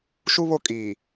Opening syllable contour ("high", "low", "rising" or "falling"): high